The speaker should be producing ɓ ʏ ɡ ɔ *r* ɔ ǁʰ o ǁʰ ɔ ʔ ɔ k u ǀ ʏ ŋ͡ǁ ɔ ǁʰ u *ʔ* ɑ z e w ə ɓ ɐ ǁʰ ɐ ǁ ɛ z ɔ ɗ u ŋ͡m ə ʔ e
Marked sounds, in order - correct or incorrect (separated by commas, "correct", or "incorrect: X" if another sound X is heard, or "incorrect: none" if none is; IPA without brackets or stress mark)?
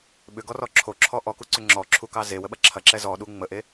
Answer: correct, incorrect: k